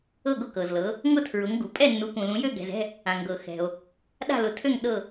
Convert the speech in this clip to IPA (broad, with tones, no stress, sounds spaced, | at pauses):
ɤ˦˨ ɡ ʊ˦˨ k ɤ˩ z l ɤ˩˧ | ŋ ʊ˦˨ tʰ ɹ ʊ˩˧ ŋ ɡ u˩ pʼ ɛ˦˨ nː u˩˧ k ũ˩ l ũ˩˧ j ø˦˨ ɡ ɛ̤˩ z ɛ̤˦˨ | ã˩ ŋ ɡ ɤ˩ x ɛ̤˩ o̯ | ɗ a̤˦˨ l ʊ˩˧ tʰ ø˦˨ ŋ ɗ ɤ˦˨